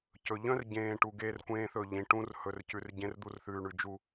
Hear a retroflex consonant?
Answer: yes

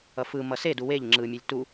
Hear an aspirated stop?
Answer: no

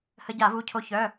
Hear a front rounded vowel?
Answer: yes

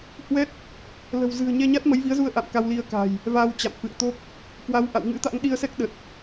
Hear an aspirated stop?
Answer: no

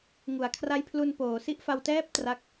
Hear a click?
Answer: no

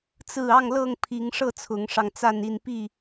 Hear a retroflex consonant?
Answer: yes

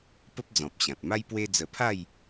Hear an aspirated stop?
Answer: yes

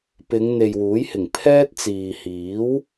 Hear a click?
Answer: no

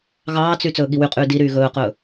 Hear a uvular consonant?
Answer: yes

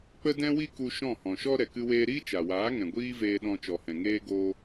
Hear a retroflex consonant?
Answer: no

